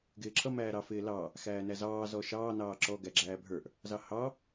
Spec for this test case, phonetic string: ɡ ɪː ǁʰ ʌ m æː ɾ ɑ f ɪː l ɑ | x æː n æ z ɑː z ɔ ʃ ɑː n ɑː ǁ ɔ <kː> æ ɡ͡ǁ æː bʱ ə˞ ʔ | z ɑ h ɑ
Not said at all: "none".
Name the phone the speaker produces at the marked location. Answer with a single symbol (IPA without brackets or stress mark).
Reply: ɡ